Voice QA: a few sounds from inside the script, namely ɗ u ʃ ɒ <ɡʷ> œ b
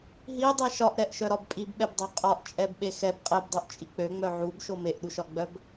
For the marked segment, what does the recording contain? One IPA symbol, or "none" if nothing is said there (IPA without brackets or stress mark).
ɡ͡b